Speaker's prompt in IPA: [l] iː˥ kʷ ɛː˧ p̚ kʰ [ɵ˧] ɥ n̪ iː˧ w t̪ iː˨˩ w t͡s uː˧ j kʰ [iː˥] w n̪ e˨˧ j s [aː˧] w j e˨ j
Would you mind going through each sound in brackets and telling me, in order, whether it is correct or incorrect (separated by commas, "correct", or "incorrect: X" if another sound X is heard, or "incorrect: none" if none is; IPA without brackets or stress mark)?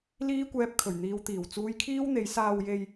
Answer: correct, incorrect: ɵ˨˩, correct, incorrect: aː˨